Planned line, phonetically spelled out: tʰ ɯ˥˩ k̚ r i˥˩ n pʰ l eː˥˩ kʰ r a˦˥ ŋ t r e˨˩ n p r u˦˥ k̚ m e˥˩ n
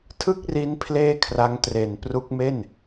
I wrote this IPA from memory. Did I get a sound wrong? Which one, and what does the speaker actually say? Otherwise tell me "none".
i˥˩ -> i˦˥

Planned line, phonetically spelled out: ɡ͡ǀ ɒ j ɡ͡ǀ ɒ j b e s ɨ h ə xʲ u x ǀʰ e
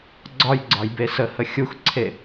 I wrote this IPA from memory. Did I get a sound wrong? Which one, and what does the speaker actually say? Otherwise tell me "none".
ɨ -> ə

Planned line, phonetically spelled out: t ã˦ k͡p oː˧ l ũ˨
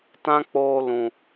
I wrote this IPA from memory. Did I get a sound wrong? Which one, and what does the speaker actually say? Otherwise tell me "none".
none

